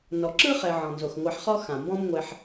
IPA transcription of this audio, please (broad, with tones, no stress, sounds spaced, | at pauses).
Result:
n ɔ˨ ǁ ɯ˥ χ ɛ˨ ʕ ɔ̃˩ n z o˩ x ŋʷ a˨ ħ χ ɔ˦ x ã˩ m b ɔ̃˦ m ŋʷ ɛ˨ ħ